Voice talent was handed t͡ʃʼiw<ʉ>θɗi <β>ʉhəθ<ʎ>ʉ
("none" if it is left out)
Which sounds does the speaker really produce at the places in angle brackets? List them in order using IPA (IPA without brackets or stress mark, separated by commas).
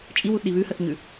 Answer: u, β, ɲ